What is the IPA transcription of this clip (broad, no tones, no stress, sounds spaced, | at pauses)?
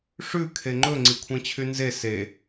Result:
ʂ ʉ kʰ e ŋ͡ǃ ɵ ŋ͡ǀ i kʷʰ ẽ t͡ɕʰ y n z e s e